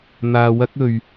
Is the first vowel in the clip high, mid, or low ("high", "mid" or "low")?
low